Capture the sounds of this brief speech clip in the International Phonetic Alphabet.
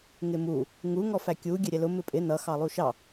ŋɪmu | ŋu ŋɔfækʲu ɡʲɛɾʲɛlʊ mɪpʼɪ nʌ xɑlˠuʃɑ

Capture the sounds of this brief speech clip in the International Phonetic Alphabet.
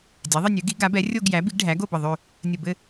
dʲɛ˩˥ðˤɘ˥˧nʲø˩˥ɡi˩˥ ɡa˩˥bɛ˩˥ rʲo˥˧ɡjæ˩˥ bi˩˥ɡɖʱæ˩˥ ɡo˥˧bə˧˩ðˤø˥˧ | nʲə˧˩bɘ˥˧

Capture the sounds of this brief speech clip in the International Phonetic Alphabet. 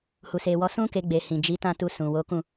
hu˨se˨wɔ˨˦ sũ˦ ke˧ɡ͡be˨ hĩ˨ d͡ʒi˨˦tã˦˨tu˧ sũ˨wo˨˦kũ˦˨

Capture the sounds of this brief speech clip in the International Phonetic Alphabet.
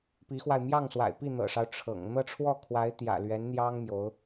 pi˧˥xwa˧ɪ̯ mjɑ˥˩ŋswa̰˨˩ɪ̯pi˥˩ n̪ɤ̰˨˩ʂɑ˦ʊ̯ ʈ͡ʂʰɤ̰˨˩ŋ n̪ɤ˥˧ʈ͡ʂʰwɔ˥˩kʰwa˧˥ɪ̯ t̪jä̰˨˩lɥɛ˧˥nn̪jɑ˥ŋ mjo˧˥ʊ̯

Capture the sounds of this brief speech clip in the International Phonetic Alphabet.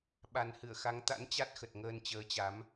ɓa˨˩nhɨ˧˩ə̯xa˨˦ŋ t̪a̰˧˥nt͡ɕa˦˥t̚xə˨˩t̚ ŋəː˧nt͡ɕəː˨˦t͡ɕa˨˦m

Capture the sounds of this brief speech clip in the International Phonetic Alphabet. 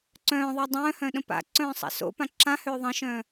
ǀœ̃ːðˤa dˤœ̃ːhœ̃ːɗə̃ pa̰ǀœ̃ːsˤa̰ so̰pã ǁãhøː ðˤə̃ʃœ̃ː

